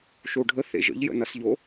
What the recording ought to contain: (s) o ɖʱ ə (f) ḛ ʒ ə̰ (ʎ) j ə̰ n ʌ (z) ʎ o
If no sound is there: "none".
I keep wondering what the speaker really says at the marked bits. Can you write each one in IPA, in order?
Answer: ʃ, θ, ʎ, s

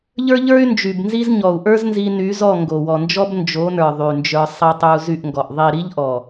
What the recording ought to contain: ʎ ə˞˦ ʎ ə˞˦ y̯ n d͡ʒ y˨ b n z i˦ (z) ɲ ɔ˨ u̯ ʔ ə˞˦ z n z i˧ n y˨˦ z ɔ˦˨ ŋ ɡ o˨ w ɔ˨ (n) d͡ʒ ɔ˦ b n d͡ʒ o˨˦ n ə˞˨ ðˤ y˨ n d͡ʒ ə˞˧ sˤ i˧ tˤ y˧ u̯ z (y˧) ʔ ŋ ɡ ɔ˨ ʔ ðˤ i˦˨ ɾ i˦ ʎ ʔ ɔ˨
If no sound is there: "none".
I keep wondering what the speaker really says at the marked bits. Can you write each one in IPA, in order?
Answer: z, n, y˦˨

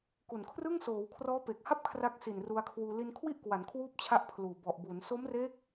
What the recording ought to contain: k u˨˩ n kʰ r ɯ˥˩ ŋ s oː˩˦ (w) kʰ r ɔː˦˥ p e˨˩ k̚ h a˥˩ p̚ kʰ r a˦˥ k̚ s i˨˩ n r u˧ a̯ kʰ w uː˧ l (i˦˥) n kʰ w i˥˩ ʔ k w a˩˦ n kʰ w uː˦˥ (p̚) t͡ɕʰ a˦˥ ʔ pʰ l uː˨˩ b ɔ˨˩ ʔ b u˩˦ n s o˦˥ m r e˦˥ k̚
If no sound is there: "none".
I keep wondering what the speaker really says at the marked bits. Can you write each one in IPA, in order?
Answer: w, i˧, p̚

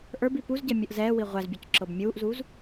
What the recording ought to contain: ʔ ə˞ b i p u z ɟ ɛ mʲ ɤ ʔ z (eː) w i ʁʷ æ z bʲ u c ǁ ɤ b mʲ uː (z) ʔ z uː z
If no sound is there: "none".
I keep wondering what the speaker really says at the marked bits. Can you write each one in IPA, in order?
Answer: ɛː, none

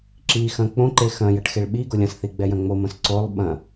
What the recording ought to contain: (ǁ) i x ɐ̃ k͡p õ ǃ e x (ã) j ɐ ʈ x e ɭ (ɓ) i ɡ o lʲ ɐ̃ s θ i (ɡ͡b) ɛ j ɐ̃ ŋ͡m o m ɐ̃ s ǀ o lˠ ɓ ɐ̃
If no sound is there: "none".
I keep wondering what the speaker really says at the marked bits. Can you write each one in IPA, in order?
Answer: ǁ, ɐ̃, ɓ, ɡ͡b

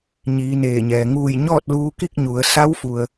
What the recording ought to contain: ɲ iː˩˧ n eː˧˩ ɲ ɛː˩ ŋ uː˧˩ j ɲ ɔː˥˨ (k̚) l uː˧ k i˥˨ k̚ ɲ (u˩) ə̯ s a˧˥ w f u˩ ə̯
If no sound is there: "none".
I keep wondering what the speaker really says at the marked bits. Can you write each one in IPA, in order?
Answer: t̚, u˩˧

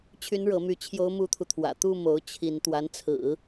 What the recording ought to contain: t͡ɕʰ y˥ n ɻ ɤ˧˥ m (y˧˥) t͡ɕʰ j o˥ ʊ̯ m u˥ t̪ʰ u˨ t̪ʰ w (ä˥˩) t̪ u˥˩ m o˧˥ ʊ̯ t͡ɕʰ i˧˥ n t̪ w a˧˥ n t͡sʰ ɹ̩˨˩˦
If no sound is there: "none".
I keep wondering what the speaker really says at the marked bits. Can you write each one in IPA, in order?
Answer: y˧˥, ä̰˨˩

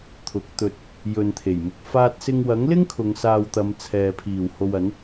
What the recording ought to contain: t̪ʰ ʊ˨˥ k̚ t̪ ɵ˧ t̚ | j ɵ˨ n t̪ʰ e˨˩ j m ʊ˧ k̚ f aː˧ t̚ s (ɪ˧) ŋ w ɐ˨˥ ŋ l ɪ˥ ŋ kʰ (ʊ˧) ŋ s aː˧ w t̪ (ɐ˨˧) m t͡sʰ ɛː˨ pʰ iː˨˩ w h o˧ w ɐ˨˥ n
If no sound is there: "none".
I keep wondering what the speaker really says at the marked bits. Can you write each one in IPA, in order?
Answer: ɪ˧, ʊ˨˧, ɐ˨˧

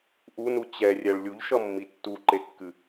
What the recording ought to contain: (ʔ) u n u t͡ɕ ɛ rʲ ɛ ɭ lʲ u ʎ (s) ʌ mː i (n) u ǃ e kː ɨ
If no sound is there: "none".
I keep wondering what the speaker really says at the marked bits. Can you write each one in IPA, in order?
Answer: ʔ, ʃ, tː

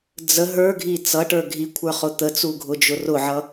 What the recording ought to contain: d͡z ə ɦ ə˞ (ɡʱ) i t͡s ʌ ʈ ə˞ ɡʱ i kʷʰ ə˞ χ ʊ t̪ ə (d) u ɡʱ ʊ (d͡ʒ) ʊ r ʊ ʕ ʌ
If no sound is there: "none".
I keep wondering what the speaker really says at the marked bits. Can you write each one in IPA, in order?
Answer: ɡʱ, t͡s, d͡ʒ

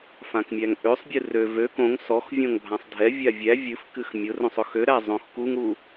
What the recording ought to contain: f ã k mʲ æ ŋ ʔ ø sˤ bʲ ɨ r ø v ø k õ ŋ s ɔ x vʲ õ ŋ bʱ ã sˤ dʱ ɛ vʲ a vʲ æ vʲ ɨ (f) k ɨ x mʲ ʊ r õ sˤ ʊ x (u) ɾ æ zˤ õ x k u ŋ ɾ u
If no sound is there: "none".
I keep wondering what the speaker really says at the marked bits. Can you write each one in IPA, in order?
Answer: f, ø

